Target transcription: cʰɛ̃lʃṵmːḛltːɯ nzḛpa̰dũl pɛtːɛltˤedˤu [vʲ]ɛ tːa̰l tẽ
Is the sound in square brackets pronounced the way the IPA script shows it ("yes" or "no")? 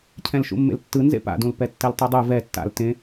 no